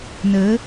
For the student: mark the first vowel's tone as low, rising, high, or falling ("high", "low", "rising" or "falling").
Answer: rising